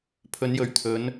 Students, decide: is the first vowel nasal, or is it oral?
oral